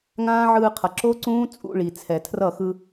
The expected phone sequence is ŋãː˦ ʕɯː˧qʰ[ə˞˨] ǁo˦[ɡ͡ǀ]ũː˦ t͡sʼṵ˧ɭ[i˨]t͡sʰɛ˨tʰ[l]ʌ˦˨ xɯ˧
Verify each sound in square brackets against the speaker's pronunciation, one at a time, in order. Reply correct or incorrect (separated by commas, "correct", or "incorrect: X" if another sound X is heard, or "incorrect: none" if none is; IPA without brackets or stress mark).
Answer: incorrect: ʌ˨, incorrect: ǀ, correct, incorrect: r